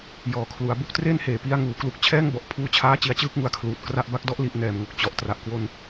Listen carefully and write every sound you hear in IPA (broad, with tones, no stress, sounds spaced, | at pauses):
j ɔː˨˩ kʰ l u˩˦ a̯ b u˥˩ k̚ t r eː˥˩ n h eː˩˦ p i˦˥ a̯ ŋ uː˩˦ k l u˦˥ k̚ t͡ɕʰ ɛː˥˩ ŋ b ɔ˨˩ ʔ pʰ uː˧ t͡ɕʰ aː˦˥ t͡ɕ i˧ a̯ t͡ɕ ɯː˥˩ k̚ ŋ u˨˩ a̯ kʰ l uː˨˩ t̚ k r a˦˥ ʔ b a˦˥ k̚ d ɔ˥˩ ʔ l i˦˥ ʔ n ɛː˧ m ŋ o˦˥ k̚ t͡ɕ ɔ˨˩ ʔ t r a˨˩ ʔ k w o˧ n